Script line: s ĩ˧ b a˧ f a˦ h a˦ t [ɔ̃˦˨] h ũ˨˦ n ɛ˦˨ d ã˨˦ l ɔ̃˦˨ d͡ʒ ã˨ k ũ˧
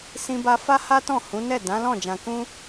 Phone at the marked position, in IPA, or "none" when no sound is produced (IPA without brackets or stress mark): ɔ̃˦˨